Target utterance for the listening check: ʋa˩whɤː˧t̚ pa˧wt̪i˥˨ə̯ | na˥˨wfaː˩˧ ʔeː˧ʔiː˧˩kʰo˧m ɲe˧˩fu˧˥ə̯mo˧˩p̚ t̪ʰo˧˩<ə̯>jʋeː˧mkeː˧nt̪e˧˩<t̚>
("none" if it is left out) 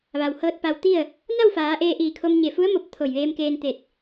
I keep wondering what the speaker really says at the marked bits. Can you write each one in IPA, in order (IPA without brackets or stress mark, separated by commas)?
none, t̚